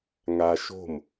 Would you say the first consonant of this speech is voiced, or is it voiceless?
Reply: voiced